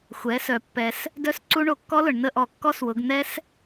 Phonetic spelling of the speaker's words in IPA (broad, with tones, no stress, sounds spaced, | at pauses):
xʷ ɛ˩˧ s œ˩ pː ɛ˩ s | d œ˦˥ s ǀ u˦˥ ɳ o˧˩˧ kː ɔ˦˥ l ʊ˩ ɳ n ə˦˨ ʔ ɔ˧˩˧ kː ɔ˦˥ s w ʊ˩˧ ɡ n̪ ɛ˦˥ s